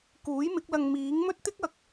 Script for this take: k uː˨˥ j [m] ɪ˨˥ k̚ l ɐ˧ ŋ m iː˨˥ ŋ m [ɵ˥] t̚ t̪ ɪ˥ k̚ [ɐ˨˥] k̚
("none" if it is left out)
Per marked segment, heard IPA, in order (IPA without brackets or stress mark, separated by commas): m, ɵ˥, ɐ˨˥